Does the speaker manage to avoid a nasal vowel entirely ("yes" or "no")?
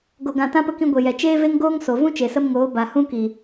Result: no